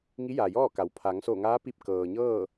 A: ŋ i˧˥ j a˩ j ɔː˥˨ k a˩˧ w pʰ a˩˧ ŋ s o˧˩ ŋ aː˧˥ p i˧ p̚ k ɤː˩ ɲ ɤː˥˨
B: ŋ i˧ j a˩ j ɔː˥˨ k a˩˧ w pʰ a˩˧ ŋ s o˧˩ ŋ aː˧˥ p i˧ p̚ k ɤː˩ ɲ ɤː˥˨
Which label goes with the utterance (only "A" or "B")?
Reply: A